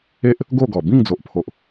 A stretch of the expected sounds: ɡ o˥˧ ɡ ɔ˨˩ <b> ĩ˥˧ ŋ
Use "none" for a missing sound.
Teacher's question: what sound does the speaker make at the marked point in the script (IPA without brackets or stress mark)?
b